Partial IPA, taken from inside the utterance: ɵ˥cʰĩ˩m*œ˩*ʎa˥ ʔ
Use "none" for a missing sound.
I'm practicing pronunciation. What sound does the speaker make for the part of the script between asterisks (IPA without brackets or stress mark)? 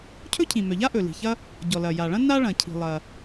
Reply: œ˩